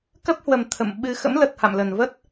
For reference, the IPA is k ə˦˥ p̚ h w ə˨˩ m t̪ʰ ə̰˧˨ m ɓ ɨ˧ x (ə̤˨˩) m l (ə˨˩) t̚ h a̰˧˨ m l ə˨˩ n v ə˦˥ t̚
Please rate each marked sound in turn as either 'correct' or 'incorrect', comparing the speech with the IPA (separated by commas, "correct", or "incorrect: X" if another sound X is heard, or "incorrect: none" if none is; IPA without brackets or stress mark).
incorrect: ə̰˧˥, correct